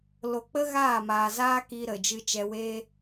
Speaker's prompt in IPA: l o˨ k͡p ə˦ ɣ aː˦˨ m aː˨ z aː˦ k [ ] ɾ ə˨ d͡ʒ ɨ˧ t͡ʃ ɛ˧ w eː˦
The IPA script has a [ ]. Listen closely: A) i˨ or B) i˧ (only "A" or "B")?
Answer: B